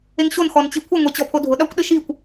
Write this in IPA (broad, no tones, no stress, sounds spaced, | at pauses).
e ŋ ɕ o n x ɔ n t͡ɕ i kʷʰ ɪ ŋʷ e t͡ɕ ɔ pʰ o dʱ ʊ ɗ a kʷ ɗ ɪ ʃ i kʷ